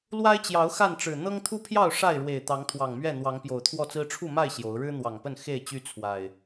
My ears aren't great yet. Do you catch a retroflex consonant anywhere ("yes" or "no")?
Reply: yes